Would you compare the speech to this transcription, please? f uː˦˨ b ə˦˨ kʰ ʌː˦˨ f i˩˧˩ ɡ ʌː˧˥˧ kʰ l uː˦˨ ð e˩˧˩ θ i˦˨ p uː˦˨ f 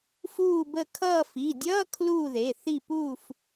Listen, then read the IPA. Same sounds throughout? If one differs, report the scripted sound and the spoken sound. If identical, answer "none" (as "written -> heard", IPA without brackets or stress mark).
ɡ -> dʲ